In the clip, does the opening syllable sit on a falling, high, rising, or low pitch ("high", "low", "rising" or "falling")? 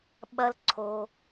high